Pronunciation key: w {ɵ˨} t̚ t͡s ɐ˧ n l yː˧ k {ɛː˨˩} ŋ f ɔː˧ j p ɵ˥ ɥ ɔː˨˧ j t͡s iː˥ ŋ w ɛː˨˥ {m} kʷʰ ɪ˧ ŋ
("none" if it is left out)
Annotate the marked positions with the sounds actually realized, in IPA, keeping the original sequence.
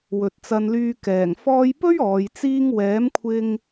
ɵ˨, ɛː˨˩, m

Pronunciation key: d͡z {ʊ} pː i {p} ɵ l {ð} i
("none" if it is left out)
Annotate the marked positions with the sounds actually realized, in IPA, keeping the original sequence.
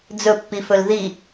ɵ, f, ð

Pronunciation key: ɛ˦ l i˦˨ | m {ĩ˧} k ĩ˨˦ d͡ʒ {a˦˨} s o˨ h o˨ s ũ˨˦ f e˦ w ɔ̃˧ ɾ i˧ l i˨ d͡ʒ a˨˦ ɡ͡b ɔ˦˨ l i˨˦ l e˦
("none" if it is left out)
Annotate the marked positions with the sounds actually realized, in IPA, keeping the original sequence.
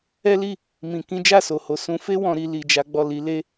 ĩ˨, a˦˨

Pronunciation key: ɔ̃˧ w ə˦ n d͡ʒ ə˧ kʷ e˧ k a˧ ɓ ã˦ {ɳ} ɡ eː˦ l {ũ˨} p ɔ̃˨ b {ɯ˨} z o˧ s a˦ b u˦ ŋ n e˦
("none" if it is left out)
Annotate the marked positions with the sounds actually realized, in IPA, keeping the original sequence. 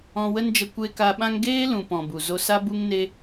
ŋ, ũ˨, u˨

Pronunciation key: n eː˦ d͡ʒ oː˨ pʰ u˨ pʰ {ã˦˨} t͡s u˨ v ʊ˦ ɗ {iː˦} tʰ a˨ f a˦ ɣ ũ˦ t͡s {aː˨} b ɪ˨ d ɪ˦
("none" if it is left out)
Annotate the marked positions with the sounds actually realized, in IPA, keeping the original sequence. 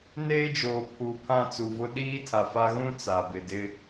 ã˦˨, iː˦, a˨

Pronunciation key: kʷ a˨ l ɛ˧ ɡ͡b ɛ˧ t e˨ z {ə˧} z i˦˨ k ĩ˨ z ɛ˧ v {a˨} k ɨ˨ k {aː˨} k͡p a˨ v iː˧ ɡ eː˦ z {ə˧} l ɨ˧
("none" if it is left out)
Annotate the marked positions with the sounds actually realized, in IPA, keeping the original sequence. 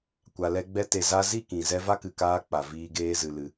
a˧, a˦, aː˧, ɨ˧

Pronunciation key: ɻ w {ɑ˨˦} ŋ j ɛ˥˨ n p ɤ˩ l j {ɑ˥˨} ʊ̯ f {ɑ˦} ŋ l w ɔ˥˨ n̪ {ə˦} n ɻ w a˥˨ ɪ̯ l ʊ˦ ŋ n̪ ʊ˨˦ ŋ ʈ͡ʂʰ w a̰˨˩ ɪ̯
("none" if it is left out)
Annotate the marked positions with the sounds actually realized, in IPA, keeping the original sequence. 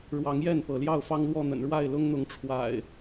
ɑ˨˦, ɑ˥˨, ɑ˦, ə̰˨˩

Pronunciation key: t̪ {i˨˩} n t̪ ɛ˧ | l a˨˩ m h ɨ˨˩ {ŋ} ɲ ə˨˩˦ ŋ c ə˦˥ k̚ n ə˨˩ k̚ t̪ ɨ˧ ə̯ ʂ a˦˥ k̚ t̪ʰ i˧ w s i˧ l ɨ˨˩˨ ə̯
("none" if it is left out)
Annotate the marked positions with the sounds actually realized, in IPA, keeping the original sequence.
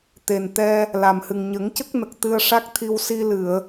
e˨˩, ŋ

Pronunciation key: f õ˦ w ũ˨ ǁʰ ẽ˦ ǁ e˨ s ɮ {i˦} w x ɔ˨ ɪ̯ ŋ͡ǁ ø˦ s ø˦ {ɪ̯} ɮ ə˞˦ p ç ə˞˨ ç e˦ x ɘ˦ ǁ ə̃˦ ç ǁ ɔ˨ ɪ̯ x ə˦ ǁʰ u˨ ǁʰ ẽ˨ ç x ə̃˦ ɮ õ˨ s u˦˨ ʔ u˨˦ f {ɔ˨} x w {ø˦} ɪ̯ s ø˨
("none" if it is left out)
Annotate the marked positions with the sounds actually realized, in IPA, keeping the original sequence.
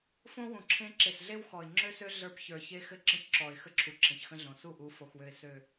e˦, none, o˨, ø˨

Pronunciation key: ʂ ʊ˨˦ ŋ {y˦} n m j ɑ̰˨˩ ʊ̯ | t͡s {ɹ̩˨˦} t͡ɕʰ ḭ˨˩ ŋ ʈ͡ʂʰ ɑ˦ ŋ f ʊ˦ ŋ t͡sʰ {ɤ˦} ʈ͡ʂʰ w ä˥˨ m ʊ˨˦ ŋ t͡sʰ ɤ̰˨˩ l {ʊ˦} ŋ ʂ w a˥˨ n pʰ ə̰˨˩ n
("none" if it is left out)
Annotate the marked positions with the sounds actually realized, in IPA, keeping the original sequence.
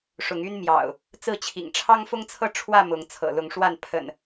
y˦, ɹ̩˥˨, ɤ˥˨, ʊ˨˦

